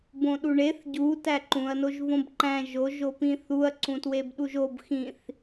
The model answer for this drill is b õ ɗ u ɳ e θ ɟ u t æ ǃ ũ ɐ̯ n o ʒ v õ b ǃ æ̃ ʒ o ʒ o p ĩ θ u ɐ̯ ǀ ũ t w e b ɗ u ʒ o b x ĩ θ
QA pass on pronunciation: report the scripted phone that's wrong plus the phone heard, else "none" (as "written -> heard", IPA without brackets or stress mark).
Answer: none